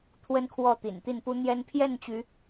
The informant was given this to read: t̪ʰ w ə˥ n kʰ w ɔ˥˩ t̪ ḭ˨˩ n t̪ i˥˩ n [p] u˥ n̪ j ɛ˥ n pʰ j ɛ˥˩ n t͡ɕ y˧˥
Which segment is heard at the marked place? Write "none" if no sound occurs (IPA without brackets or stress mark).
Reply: p